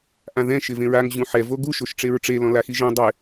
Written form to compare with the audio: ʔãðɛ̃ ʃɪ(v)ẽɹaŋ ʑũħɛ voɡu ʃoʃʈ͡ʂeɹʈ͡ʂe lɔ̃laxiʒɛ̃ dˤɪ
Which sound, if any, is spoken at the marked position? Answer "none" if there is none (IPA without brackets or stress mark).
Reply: v